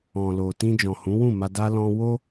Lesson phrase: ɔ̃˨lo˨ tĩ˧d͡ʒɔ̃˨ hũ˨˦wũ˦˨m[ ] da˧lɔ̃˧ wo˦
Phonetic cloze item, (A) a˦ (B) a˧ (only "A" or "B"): B